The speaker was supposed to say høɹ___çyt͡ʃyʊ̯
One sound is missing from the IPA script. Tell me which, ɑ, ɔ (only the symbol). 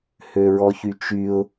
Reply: ɔ